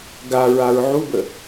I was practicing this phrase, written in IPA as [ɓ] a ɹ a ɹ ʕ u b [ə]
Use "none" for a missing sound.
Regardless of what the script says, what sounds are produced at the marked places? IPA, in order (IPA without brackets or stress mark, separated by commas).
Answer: ɡ, ə